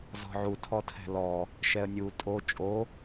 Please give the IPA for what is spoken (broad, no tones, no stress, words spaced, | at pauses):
zɔ̤ʕu tʰɔtʰɛ̤lɔ | ʃɛə̯nʲu tʼo t͡ʃʼo